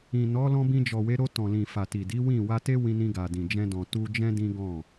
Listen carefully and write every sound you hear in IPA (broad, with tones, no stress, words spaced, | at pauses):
ĩ˨nɔ˨˦ lɔ̃˧bĩ˧d͡ʒɔ˨we˨˦ ɾo˧tɔ̃˨lĩ˨ fa˨ti˨di˨˦ wĩ˦˨ wa˧te˦ wĩ˧nĩ˧ɡa˨ dĩ˨d͡ʒɛ̃˧dɔ̃˨ tu˧d͡ʒɛ̃˦ dĩ˦ɡɔ̃˦˨